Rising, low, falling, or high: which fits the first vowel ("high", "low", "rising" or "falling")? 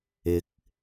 rising